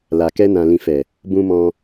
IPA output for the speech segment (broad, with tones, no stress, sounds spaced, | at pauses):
l a˨ k ɛ˧ n ã˨ l ĩ˨ f ɛ˨ | b ũ˧ m ɔ̃˧